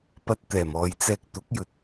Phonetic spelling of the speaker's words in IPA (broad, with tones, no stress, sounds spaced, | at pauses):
p ɐ˧ t̚ t̪ ɛː˨˩ m ɔː˨ j t͡s ɛː˧ k̚ t̪ ʊ˨˥ k̚ j ɵ˨ t̚